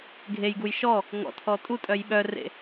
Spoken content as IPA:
ɡʱ e j ɡ u j ʃ ɔ | ŋ ɔ̰ tʰ ɔ tʼ u tʼ œ j ɓ œ r ḛ

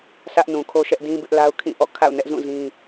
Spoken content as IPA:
sʰ ä˦ ʔ n ũ˨ kʰ o˦ ʃ ɛ˦ ʔ d ĩ˦ b ɪ˦ ʔ l a˦ ʊ̯ kʰ ĩ˦˨ ʔ ɔ̰˦˨ kʰ a̰˦˨ ʊ̯ n ɛ˦ ʔ z ũ˦˨ z ĩ˦

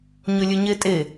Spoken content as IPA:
ɲ ɵ lʲ ɵ ɲ e tʼ e

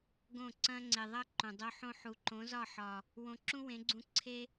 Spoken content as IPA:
ɡ õ˦˨ ǀ ɐ̃˦ ŋ͡ǀ e˨ ðˤ ɐ˦ ǃ õ˨ dˤ o˧ ħ õ˧ ħ u˨ ǃ õ˨˦ z ɒ˦˨ ħ ɒ˨ | w õ˧ ǁ ũ˦ w ẽ˨˦ ɡ͡ǀ ũ˧ ǀʰ e˦

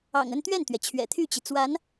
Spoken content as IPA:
ɑ̰˨˩ ŋ ə˥˧ n t̪ ɥ ɛ˥˩ n t̪ ɥ ɛ˩ t͡ɕʰ ɥ ɛ̰˨˩ t̪ʰ y˥˩ t͡ɕ i˩ t͡s w a˧˥ n

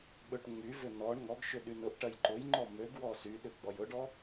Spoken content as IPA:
ɓ ø ʈ ŋ͡m y v ʏ n ɔ ɳ ŋ ɔ ɡ ʃ ʏ ɗ y n ʊ ʔ ʈ ɐ j ǃ ʊ j ŋ͡ǃ ɔ m ø ɡ w ɔ s y ɗ ʏ ɡ͡b ɔ j ʊ ɖ ɔ

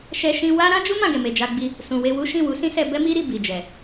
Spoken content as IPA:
ʃ ɛ˦ ʃ ĩ˦ w a˦ ɾ ã˦ d͡ʒ u˦ m ã˦˨ ɡ ɛ˨ m e˨ d͡ʒ a˧ ɡ͡b i˧ | s ũ˨ w e˧ w u˦ ʃ ĩ˦˨ w u˨˦ s ĩ˦ s ɛ˧ b ɛ˦ m i˦ ɾ i˧ b i˨ d͡ʒ ɛ˨

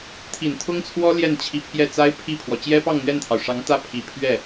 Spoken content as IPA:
t̪ʰ i˨˩ n t̪ʰ ʊ˥ ŋ t͡sʰ w ɔ˥ l j ɛ˥˩ n t͡ɕʰ i˧˥ pʰ j ɛ˥˩ t͡s a˥ ɪ̯ pʰ i˥˩ pʰ w ɔ˩ t͡ɕ j ɛ˥ p ɑ˥˧ ŋ n̪ ɥ ɛ˥˩ n t̪ʰ ɑ˩ ʊ̯ ʂ ɑ˧˥ ŋ t̪ ä˥˩ pʰ i˨˩ pʰ ɥ ɛ˥˩

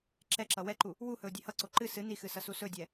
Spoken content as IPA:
ǁ ɛ ǁ ʌ w ɛ ǃ u | w u h ɵ ʊ̯ dʲ e h ʌ ǀ o ǃ ɨ s ɨ n i x ɨ s ʌ s u s ɵ dʲ ɛ

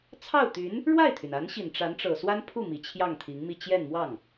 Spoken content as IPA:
t͡sʰ ɑ˥˩ ʊ̯ t̪ y˧˥ n | ɻ w a˥˩ ɪ̯ t̪ʰ y˩ n a˧˥ n ɕ i˨˩ n ʈ͡ʂ a˧˥ n ʈ͡ʂ ɤ˨˩ s w a˥ n pʰ u˥˩ m i˨˩ t͡ɕʰ j ɑ˥˩ ŋ t̪ʰ i˧˥ ŋ m i˥˧ t͡ɕ j ɛ˥˧ n m w ɑ˥˩ ŋ

